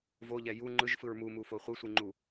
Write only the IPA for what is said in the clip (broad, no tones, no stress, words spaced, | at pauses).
voʎɛ ju ŋ͡ǃɯʒfɯɹ mumufo χʷɯsʷiŋ͡ǃu